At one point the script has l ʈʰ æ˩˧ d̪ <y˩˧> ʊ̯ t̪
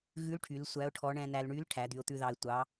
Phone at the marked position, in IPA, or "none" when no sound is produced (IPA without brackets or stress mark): y˩˧